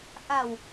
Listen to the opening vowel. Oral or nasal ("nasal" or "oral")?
oral